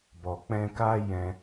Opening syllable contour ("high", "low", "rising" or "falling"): low